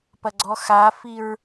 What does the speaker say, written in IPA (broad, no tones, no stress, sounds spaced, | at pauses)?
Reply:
p ɐ ɡ͡ǀ ɔ x a f i ɹ